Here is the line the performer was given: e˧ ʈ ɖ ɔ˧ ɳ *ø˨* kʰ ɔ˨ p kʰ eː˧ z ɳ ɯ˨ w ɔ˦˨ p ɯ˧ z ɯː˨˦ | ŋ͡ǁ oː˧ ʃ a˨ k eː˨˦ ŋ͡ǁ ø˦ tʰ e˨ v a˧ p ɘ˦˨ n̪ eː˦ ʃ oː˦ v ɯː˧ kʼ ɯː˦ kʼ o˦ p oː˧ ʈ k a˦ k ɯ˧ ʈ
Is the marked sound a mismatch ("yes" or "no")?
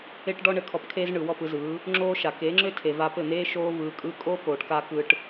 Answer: yes